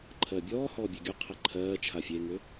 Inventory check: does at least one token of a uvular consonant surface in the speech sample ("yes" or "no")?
yes